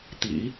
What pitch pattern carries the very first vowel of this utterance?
low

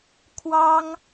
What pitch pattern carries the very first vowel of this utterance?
high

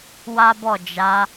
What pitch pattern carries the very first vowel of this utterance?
high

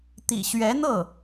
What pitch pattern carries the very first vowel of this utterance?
low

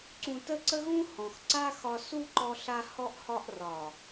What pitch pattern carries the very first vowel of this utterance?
low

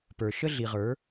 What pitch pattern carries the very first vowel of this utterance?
low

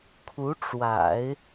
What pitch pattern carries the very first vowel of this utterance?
rising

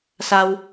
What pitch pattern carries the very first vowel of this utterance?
high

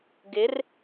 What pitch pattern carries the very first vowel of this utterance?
rising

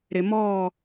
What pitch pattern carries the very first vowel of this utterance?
low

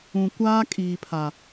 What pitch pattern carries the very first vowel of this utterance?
low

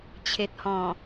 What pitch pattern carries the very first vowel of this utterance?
low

